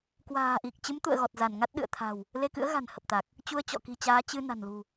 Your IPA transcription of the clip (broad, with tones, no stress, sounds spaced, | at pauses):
k w a̤ː˨˩ ʔ i˨˩ k̚ t͡ɕ ɨ˨˦ m t̪ ṵ˧˨ ə̯ ɣ ɔ˨˩ t̚ z a˧˩ n ŋ a˦˥ t̚ ɗ ɨ̰˧˨ ə̯ t̪ʰ a̤˨˩ w | l e˧ k ɨ̰˧˥ ə̯ ɣ a̤˨˩ n h ə˨˩ p̚ t̪ a˨˩ k̚ | t͡ɕ u˧ ə̯ t͡ɕ ɔ̰˧˨ k i̤˨˩ t͡ɕ aː˨˦ t͡ɕ ɨ˧ n a̤˨˩ n l ṳ˨˩